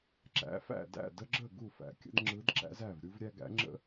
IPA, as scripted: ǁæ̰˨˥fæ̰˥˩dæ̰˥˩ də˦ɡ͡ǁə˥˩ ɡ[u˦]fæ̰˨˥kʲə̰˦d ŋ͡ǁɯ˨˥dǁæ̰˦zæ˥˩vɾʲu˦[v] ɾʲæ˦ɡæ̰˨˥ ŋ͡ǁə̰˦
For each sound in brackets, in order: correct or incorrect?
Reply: incorrect: u˥˩, correct

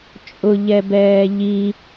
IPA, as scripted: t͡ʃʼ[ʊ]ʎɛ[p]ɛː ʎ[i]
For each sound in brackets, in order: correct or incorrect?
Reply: correct, incorrect: b, correct

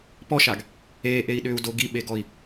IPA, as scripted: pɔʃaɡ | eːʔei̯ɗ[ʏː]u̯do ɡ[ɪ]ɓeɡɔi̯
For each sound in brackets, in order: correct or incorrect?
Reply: correct, incorrect: i

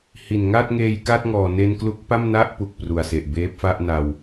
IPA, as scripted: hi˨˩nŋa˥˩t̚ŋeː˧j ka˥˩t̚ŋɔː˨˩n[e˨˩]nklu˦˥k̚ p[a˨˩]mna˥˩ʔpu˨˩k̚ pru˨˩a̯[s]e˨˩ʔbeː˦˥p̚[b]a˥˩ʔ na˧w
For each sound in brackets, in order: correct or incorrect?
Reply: incorrect: e˧, incorrect: a˥˩, correct, incorrect: f

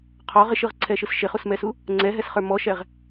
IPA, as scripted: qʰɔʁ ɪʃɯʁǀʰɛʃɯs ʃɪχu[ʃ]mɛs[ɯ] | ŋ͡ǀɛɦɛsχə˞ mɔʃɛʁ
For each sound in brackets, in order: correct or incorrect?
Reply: incorrect: s, incorrect: u

